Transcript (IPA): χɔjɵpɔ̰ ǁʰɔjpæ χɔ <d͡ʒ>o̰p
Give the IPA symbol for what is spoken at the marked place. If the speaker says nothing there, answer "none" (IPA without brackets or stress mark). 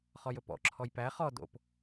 d